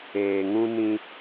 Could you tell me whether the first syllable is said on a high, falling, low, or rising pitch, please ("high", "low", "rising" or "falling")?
low